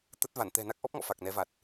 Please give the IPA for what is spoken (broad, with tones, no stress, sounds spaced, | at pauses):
t̪ ə˦˥ t̚ v a˧˩ n t̪ ɛ̤˨˩ n a˦˥ k̚ ʔ ɔ˦˥ p̚ ŋ ɔ̰˧˨ f a˨˩ k̚ n ɛ˨˦ v a˨˩ t̚